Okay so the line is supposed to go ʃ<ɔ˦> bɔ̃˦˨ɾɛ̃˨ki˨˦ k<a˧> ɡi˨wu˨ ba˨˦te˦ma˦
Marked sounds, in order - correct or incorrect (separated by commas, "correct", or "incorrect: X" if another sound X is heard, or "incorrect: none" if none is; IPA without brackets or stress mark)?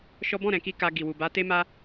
correct, correct